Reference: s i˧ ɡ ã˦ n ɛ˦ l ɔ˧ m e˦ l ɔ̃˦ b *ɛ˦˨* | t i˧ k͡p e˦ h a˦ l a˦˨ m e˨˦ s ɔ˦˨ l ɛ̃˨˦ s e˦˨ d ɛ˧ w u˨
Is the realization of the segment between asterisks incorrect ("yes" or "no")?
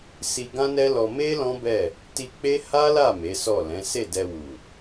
no